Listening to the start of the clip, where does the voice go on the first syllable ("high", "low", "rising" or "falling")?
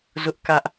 high